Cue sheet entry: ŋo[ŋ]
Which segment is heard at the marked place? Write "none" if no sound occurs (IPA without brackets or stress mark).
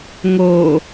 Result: none